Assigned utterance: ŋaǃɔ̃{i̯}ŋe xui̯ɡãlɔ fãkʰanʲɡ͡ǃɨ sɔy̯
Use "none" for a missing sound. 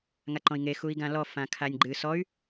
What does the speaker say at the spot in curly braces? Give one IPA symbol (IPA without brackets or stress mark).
i̯